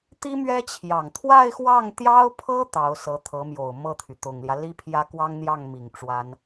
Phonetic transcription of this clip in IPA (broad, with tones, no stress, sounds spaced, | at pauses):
t̪ i˥ m ɥ ɛ˥ t͡ɕʰ j ɑ˨˩ ŋ t̪ʰ w a˥˧ ɪ̯ x w ɑ˥˩ ŋ t̪ j ɑ˥ ʊ̯ pʰ ɤ˥ t̪ ɑ˧˥ ʊ̯ s ɤ˧˥ t̪ʰ ɤ˧˥ m j o˨˩ ʊ̯ m ɤ˥˩ t̪ʰ y˩ t̪ ʊ˨˩ ŋ l j ä˦ l i˥ pʰ j ä˥ k w ɑ˥ ŋ n̪ j ɑ˥˩ ŋ m i˨˩ ŋ ʈ͡ʂ w a˥ n